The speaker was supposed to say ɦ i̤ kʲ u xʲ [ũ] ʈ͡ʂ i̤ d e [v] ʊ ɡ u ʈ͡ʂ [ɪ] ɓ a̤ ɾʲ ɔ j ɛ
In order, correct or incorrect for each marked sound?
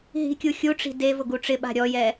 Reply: incorrect, correct, correct

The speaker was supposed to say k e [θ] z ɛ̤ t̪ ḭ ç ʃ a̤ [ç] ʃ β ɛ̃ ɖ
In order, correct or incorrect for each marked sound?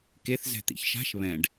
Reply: correct, incorrect

